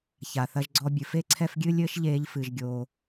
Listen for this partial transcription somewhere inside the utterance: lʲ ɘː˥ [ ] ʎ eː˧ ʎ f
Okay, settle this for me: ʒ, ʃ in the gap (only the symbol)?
ʃ